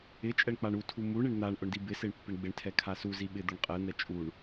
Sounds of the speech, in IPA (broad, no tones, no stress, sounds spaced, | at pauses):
ɪ t͡ʃʼ ɛ ɳ k͡p a ɳ u tʰ u m u ɳ ɪ ɳ n̪ a ɳ ʔ ʊ ɳ d i b ɪ s e ɳ pː ɪ ɳ ɡ͡b ɪ ɳ tʰ ɛ kʰ a s u z i ɓ ɪ d̪ ʊ ɳ qʼ ɛ n̪ ɛ t͡ʃʼ u ɳ